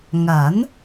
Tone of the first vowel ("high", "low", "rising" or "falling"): rising